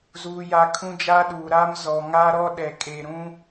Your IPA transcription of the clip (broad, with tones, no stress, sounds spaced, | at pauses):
z uː˦ j a˦ kʰ ũ˦ d͡ʒ aː˦ ɗ uː˨ ɾ a˦ m z ɔ˨ ŋ a˦ ɾ ɔ˦ ɗ ɛ˨ kʼ e˨ ɾ ũ˦